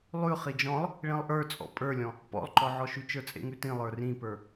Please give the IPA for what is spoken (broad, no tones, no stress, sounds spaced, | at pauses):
lˠ ʉ χ i d͡ʒ ɔ̃ lˠ | ɭ ĩ lˠ ʔ ə˞ t͡sʼ ɔ̰ pʼ ə˞ lʲ ɔ̃ | p ɔ̰ lˠ ǃ ɔ ʕ ɔ ʃ ʉ t͡ʃ ə˞ t͡sʼ ḛ ŋ ʉ t ĩ lˠ ə˞ r ĩ p ə˞